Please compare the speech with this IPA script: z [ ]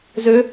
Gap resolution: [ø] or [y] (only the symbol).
ø